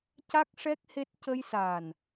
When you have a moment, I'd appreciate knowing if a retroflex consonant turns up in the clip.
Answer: yes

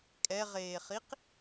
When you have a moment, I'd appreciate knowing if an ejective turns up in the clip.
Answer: yes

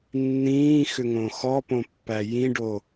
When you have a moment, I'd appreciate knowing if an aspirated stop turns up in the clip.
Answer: no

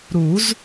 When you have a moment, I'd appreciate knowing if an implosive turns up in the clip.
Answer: no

